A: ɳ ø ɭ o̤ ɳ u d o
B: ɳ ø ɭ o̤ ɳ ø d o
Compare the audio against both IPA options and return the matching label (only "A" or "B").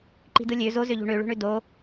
B